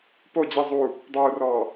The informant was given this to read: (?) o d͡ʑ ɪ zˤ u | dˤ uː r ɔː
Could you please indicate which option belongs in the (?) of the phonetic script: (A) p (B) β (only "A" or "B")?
A